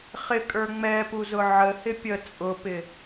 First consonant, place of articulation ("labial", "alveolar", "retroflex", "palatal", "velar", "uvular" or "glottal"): uvular